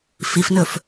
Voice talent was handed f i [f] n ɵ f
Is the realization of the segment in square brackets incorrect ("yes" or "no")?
no